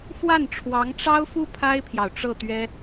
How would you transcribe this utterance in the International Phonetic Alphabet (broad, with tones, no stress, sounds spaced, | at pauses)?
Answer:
f w a˥˩ n ʈ͡ʂʰ w ɑ˧˥ ŋ ʈ͡ʂ ɑ˥ ʊ̯ f u˥ pʰ a˥ ɪ̯ pʰ j ɑ˨ ʊ̯ ʈ͡ʂ ɤ˥˩ t̪ ɥ ɛ˥